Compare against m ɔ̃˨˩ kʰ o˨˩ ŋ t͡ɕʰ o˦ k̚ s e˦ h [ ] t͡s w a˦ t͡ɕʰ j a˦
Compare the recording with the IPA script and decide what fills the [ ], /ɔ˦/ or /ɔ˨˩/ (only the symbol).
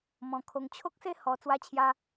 ɔ˨˩